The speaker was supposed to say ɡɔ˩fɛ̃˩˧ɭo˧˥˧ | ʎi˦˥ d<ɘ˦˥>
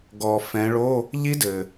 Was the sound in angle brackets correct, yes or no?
no